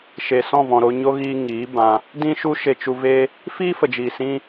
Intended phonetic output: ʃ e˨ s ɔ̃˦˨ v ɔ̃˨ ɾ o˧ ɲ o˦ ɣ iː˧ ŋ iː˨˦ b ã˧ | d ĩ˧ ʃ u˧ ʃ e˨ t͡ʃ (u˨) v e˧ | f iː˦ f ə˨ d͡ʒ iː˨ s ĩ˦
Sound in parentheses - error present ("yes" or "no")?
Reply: no